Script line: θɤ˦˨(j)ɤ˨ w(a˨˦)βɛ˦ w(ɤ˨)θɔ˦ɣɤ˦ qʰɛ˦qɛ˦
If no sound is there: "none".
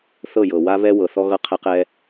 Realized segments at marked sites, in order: j, a˦, ɤ˨

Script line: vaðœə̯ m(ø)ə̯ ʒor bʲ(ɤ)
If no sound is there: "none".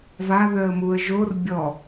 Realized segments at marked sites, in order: u, ɔ

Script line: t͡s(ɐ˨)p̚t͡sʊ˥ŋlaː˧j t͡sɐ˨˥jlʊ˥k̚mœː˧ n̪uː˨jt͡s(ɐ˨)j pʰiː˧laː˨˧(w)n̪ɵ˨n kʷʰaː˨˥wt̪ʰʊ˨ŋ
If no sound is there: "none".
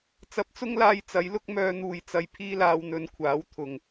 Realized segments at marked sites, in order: ɐ˧, ɐ˨, w

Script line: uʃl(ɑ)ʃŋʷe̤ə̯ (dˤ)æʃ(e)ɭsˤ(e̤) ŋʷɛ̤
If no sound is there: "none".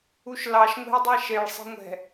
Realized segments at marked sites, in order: ɑ, dˤ, e, e̤

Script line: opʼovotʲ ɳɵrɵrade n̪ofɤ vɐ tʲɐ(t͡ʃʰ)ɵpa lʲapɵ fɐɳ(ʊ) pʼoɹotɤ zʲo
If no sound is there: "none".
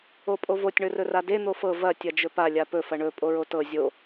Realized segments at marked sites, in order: d͡ʒ, ɵ

